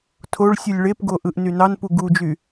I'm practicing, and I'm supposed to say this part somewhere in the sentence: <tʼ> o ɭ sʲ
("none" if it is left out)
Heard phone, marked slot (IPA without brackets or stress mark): tʰ